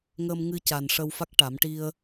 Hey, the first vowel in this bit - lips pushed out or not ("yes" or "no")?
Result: no